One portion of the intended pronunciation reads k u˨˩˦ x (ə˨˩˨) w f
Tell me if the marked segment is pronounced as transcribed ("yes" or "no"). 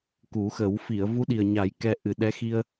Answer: no